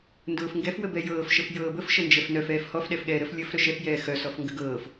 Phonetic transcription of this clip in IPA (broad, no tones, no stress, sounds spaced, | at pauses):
n d ʊː f ŋ ɡ ɛ f w ə b ɛ j ɤː f ʃ ə f j ɤː b ə f ʃ ə n d͡ʒ ɛ f n œ f ɛː f h ɔ f ɗ ɛ f ɠ ɛː ɾ ə f lʲ ə f ɾ œ ʃ ɛ f j ɛː x œ s ɔ f ŋ ɡ ə ɡ ɤː f